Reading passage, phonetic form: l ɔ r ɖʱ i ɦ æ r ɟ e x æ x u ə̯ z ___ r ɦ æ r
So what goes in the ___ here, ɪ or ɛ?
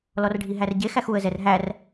ɛ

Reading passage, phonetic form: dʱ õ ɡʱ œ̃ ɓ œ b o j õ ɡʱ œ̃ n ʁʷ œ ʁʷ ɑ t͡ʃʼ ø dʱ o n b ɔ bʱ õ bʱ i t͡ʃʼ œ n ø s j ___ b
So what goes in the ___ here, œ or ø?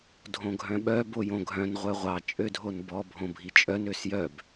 œ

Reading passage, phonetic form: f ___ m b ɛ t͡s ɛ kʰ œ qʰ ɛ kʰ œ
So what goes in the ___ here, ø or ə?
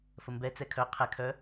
ə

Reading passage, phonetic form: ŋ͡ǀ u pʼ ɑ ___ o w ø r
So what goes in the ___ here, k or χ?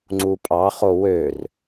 χ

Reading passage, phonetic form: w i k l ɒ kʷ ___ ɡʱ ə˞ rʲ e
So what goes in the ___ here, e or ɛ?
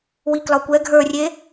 ɛ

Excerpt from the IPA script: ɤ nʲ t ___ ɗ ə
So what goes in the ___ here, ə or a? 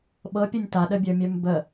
a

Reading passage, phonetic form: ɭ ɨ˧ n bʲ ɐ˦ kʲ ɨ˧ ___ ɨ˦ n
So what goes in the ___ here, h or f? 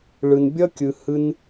h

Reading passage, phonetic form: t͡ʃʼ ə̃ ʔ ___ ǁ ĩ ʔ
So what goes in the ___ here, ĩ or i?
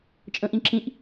ĩ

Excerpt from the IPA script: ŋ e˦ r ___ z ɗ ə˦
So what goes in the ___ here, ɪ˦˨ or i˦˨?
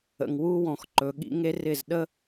ɪ˦˨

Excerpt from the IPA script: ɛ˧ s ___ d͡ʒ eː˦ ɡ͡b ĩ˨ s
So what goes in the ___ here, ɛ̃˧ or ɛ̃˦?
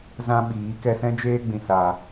ɛ̃˦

